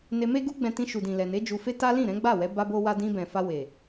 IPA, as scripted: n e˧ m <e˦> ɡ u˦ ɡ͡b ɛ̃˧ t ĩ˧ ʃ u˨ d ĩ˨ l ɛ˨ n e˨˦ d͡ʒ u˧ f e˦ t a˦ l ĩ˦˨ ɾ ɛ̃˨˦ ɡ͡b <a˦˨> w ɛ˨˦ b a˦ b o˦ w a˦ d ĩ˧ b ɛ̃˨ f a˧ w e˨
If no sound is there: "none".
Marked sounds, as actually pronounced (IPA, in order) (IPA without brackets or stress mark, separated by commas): e˦, a˦˨